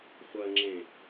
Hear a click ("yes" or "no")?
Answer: yes